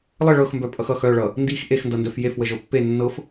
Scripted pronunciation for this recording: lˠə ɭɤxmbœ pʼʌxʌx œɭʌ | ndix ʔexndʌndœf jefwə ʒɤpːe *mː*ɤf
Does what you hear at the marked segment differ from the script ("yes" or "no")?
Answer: yes